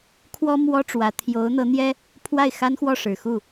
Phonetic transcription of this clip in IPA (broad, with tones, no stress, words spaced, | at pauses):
kʰwɔ˥mwɔ˥ ʈ͡ʂwä˧˥ t̪ʰjo˧˥ʊ̯n̪ɤ˧˥n̪jɛ˥ | pʰwa˥˩ɪ̯xa˥nxwɔ˥˩ ʂɻ̩˨˩xu˥˩